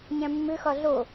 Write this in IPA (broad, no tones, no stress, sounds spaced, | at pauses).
ɲ æ̃ mː ʏ x ɒ ɮ o